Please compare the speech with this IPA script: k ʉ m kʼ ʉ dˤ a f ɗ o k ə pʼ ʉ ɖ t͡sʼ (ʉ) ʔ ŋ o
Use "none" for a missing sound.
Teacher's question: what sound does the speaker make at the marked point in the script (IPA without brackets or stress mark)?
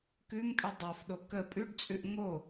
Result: ʉ